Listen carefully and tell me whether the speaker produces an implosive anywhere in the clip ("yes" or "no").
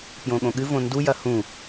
yes